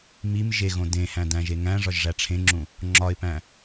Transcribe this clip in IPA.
m i m ʒ e ɣ õ d ẽ h æ̃ d æ̃ ʒ e ŋ æ̃ ʐ ɒ ʒ ʐ æ ʈ͡ʂʰ ẽ ŋ͡ǁ ũ | ŋ͡ǁ ɒ ɪ̯ p æ̃

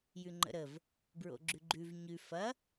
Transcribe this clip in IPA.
j ʉ ŋ͡ǃ ə̰ ɾ ə v | b ɹ o̰ ɡ͡ǁ ʉ ɡ͡ǃ ʉ v ɲ ʉ f ɐ

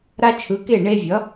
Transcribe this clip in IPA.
ɾ a˦ t͡ʃʰ ɯ˩˥ k e˥˩ ɳ e˦ vʲ ʌ˩˥

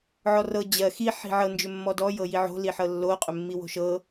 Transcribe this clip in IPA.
ʕ ɔ r ɤ d͡ʑ ɜ x i ħ i̤ ʕ ɤ n d͡ʒ ʏ mː ɔ d ɔ j ɤ j i ʕ o̤ l i ħ ɤ lː o qʼ ʏ mː i w o̤ ʃ ɤ

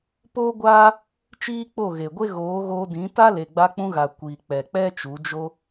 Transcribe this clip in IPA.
p oː˦ ɡʷ aː˦ | t͡ʃ iː˦ k͡p o˦˨ ɣ e˨ ɡʷ e˦ ɣ oː˨˦ ɣ oː˧ d ĩ˨˦ t a˦ l e˨ ɡ͡b a˧ k͡p ũ˧ ɣ a˨ kʷ iː˨ k͡p ɛ˨ k͡p ɛ˦ t͡ʃ u˨˦ d͡ʒ o˦

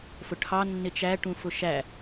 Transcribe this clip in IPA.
f ʊ ʈʰ ɑ nː ɪ t͡ʃ æ ʈ ũ f ʊ ʃ æ

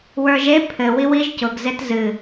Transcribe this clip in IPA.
w ə˞ ʒ e pʰ ɘ w i w i ʒ c ʊ ɡ z e t z ɨ

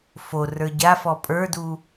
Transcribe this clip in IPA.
f o r ə˞ ɟ a f ɔ pʼ ə˞ d u

